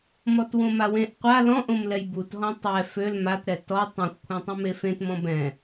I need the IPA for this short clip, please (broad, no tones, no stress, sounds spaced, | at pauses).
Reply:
m ɔ t w õ m a w ẽ ʔ qʷ a l ɔ̃ ʔ õ m l ɛ j b u t ɦ ɔ̃ tˤ ɛ f ø l m a t ɾ ɛ t ɔ tˤ õ xʷ kʷʰ ɛ̃ tˤ ũ m e f ẽ t m ɔ̃ b ɛ̃